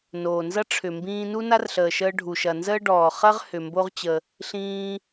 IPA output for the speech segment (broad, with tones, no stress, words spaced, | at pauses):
noː˩nzɐ˥ ʈ͡ʂʰʏ˩mbĩː˧ nu˥na˥rɬəː˩ʃəː˧ ɖʱu˩ʃɐ˩nzəː˥ ɖɔː˩χɐ˥ʁ hʏ˩mbo˧ʁt͡ɕə˩ | ɬĩː˧